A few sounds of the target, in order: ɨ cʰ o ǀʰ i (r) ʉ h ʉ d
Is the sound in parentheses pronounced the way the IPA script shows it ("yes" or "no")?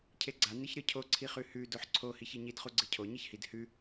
no